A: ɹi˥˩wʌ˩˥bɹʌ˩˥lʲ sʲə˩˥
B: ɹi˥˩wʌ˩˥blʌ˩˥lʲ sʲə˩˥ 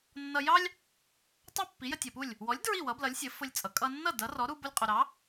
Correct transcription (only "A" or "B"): B